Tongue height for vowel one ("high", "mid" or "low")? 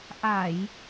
low